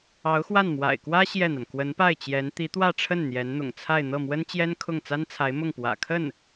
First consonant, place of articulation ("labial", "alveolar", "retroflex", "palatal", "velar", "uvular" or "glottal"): velar